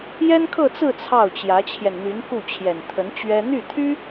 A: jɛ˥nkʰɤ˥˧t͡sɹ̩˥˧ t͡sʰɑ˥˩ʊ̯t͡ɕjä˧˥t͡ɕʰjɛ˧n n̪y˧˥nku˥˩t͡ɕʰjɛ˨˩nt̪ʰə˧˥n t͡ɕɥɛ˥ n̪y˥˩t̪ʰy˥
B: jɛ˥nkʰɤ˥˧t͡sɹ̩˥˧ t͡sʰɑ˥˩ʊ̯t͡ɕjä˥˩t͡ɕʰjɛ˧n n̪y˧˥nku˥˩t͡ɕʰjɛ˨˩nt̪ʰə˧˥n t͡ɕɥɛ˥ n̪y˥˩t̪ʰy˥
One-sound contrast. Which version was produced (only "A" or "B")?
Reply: A